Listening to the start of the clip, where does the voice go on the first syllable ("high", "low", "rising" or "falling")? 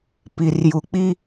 low